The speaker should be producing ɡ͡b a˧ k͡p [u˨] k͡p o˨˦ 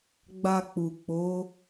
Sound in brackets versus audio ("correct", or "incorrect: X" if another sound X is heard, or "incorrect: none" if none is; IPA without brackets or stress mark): correct